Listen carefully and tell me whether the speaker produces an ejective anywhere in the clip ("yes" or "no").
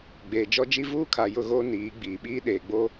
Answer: no